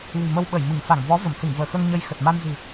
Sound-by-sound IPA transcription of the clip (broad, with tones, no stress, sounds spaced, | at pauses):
l i̤˨˩ m ə˧ w ɓ ə˧˩ j m ɨ˧˩ ŋ f a˧˩ ŋ v ɔ˨˦ v ə˧˩ m s ɨ˧˩ ŋ v əː˧˩ x əː˧ ŋ ɲ ə˧ j x ə˨˩ t̚ m a˧ n z ɨ̤˨˩